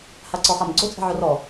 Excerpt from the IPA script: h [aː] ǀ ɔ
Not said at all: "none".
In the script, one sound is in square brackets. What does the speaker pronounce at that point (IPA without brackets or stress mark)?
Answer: a